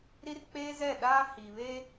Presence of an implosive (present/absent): present